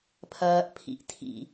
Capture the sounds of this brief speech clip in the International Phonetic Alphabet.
pʰ ɐː ʔ pʰ ḭ ʔ tʰ ḭ

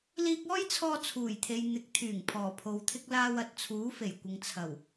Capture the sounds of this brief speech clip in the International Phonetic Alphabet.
l iː˧ k̚ ɔː˥ j t͡sʰ ɔː˧ t͡sʰ uː˨˩ j t̪ʰ e˨ j n̪ ɪ˨˥ k̚ t̪ʰ yː˨˩ ŋ pʰ ɔː˨˩ pʰ o˨ w t̪ʰ ɪ˥ k̚ l aː˧ w ɐ˨ t̚ t͡sʰ uː˨˥ f e˨˩ j kʷ ɪ˨ ŋ t͡sʰ ɐ˨˩ w

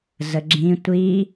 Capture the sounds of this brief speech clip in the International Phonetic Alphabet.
z ə ɡ͡ǁ ĩ tʷ i

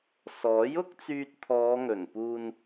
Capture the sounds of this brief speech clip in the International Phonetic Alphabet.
s ɔː˨˥ j ʊ˥ k̚ t͡s yː˧ t̚ t̪ʰ ɔː˨˧ ŋ ɵ˨˩ n p uː˧ n

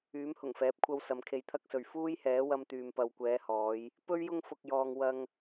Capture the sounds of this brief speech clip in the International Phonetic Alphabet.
yː˨˥ m h ʊ˨˩ ŋ f ɛː˨˥ p̚ kʷʰ ɐ˧ w s ɐ˨ m kʰ e˧ j t̪ʰ ɐ˥ k̚ s ɵ˨ ɥ f uː˥ j h ɛː˨˥ w ɐ˧ m t̪ yː˨ m p ɐ˨ w kʷ ɛː˨˧ h ɔː˨˧ j | p ɵ˥ ɥ j ʊ˥ ŋ f ʊ˧ k̚ j ɔː˧ ŋ w ɐ˧ ŋ

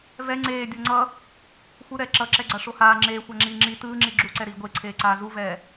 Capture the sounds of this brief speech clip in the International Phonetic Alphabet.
v ɛ ŋ͡ǀ eː dʲ o ŋ͡ǀ ʌ | xʷ ɯ ɾ ɛː ǁ ʌ ǁ ɛ ɡ͡ǀ a ʂ o h aː ŋ͡ǁ eː xʷ a ŋ͡ǁ iː ŋ͡ǁ i t ɯː ŋ͡ǁ i ɡ͡ǁ u ǀ ɛ ɾ iː ɡʷ e ǀʰ eː ǀ aː z u v ɛː

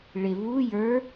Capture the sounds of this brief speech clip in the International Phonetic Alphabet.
ɭ ɪ β u j ə˞

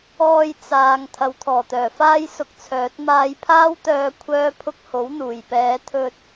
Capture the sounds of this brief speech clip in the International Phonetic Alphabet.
ɔː˧ j t͡s aː˨ ŋ t̪ʰ ɐ˨ w t̪ʰ ɔː˨˩ t̪ œː˨˩ f aː˥ j s ʊ˧ k̚ t͡sʰ œː˨˥ t̚ m aː˧ j pʰ aː˥ w t̪ œː˧ kʷʰ œː˥ pʰ ʊ˥ k̚ h o˨˥ w n̪ uː˨˩ j p ɛː˨˧ t̪ʰ ɵ˧ t̚

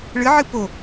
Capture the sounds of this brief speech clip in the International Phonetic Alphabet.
ɭ ɨ ʕ ɨ p o

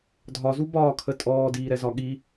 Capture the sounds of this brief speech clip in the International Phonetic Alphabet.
dʱ ɒ z u b ɒː kʰ ə tʼ ɔː d iː ɾ ɛ z ɒ ɠ i

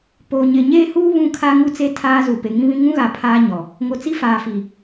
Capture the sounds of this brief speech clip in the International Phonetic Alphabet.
p oː˨ ɲ ɪ˨ ɲ eː˦ h uː˦ β ũ˦ kʰ a˦ ŋ u˦ t͡s e˦ tʰ aː˦ z u˨ p e˨ ŋ ĩ˦ β ĩ˦ ŋ ũ˦ ɣ a˨ pʰ aː˦ ɲ ɔ˨ | ŋ o˨ t͡s i˦ f aː˨ f i˨

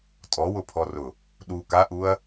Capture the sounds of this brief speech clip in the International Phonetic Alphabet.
tʼ ɔ w ʊ pʰ ɔ r ʊ | ɗ u k a ʔ u ɐ̯

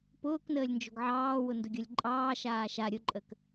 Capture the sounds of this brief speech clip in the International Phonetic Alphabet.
p ʊː k n əː lʲ n d͡ʒ o̤ ɡ ʕ ɑː w ʊ n d ʊ ɡʲ ɤ lʲ ǃʼ ɑː ʃ aː ʃ a ɾʲ ʊ ǃʼ ə k

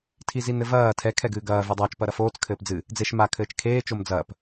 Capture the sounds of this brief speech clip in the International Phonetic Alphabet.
tʰ i z i n ɘ v ɐː tʰ ɛ kʰ ɛ ɡ ɨː ɡ ɐː v e dˤ ɐː t͡ʃ p ɐ ɾ ɐ f oː t͡s kʰ ɘː p d͡z ɨ | d͡z e ʃ m a kʰ ɘː t͡ʃ kʰ eː t͡ʃ o m d͡z ɐː p

